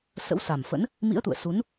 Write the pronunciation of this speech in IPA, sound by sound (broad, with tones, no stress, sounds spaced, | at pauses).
s ə̰˧˥ w s a˨˩ m f ə̰˧˥ n | m ḭ˧˥ ə̯ t̪ ṵ˧˨ ə̯ s u˨˦ n